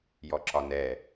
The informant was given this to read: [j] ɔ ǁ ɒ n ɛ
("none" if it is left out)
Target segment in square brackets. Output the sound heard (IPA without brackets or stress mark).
j